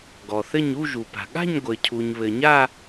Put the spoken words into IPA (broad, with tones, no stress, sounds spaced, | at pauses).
ɡ ɔ˩ θ ɘ˥˧ ɲ u˥˧ ʒ u˩ p a̤˩ ɠ a̤˥˧ ɲ ɡʷ ɘ˩ cʰ u˩ ɲ β ɘ˩ ɲ a˥˧